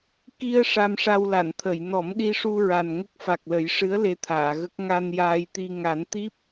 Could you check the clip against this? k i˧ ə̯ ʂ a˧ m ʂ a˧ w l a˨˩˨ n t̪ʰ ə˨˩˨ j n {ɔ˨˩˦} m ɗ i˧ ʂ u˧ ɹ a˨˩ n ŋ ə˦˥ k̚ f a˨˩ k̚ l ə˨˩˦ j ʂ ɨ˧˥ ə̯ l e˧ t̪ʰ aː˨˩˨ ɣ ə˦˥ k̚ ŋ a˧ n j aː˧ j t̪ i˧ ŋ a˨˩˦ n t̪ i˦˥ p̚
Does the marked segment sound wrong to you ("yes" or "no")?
no